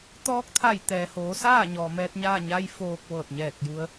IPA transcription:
t̪ ɔː˧˥ k̚ t̪ʰ a˧˩ j t̪ ɛː˩ h oː˩˧ s aː˥˨ ɲ ɔː˩ m ɛː˧ t̚ ɲ aː˥˨ ɲ a˧ j f oː˧ k̚ ʋ ɤː˧˩ t̚ ɲ ɛː˧˩ k̚ j u˧ ə̯

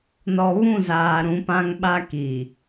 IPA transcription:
n ɔ˨ β ũ˦˨ z aː˨ ɾ ũ˨˦ p ã˦ ŋ ɓ a˦ k i˨

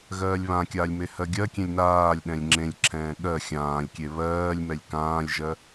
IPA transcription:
ɣ ɜː lʲ β ã kʲ aː lʲ m e h ɜ ɡʲ ɜ kʲ ẽ lʲ n aː lʲ ɗ ɛ̃ lʲ ŋ͡ǁ ẽ lʲ ǁʰ ɛ̃ː ɠ ɜ xʲ ãː lʲ kʲ e β ɜː lʲ m ɛ lʲ k ãː lʲ ʒ ɜ

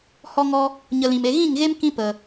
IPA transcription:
h ɔ˦ ŋ ɔ˦ | ɲ ə˧ l ĩ˨ m e˧ ɣ ĩ˦˨ ŋ ɣ e˦ m k ĩ˧ p ə˨

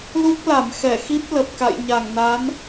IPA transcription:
l u˦˥ k̚ l a˧˩ m x ɛ˧˩ x i˦˥ p̚ l ə˨˩ p̚ k a̰˧˨ j ɲ a˧˩ ŋ n a˨˦ n

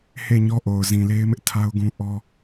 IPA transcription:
h e˦˨ ɲ ɔ˦ ʔ o˨ ʊ̯ z ĩ˨ l e˦ ɪ̯ m ɪ˦ ʔ tʰ a˦ ʊ̯ ɡ ũ˦ ʔ ɔ˦

